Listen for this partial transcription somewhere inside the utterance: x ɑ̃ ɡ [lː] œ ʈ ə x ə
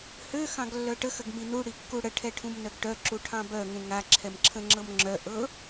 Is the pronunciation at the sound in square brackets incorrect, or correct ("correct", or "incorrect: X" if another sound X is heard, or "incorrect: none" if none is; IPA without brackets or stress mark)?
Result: correct